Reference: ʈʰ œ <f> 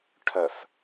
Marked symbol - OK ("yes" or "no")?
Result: yes